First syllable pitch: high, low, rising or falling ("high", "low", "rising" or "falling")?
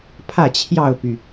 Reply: falling